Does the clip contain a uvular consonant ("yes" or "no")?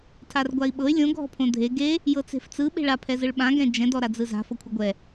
no